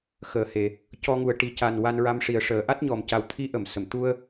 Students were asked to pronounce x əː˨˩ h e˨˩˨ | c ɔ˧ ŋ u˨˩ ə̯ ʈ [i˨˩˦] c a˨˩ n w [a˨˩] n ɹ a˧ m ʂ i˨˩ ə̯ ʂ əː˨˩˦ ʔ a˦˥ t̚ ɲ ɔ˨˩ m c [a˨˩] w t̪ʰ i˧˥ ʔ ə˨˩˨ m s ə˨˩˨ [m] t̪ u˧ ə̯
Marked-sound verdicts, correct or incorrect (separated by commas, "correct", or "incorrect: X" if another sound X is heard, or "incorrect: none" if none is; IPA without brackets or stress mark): correct, incorrect: a˧, correct, correct